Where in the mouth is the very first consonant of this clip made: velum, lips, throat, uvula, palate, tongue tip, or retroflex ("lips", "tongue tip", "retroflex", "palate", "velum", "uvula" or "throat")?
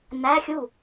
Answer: tongue tip